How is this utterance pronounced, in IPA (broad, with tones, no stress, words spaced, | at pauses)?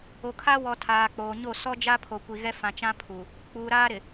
o˨kʰa˦ wɔ˨ tʰaː˨k͡poː˨ɲo˦˨ sɔ˦d͡ʒa˦ pʰo˨kʷi˨ɣɛ˦fã˨ t͡ʃã˦pʰu˨ | k͡puː˨ɾaː˦ɾɪ˨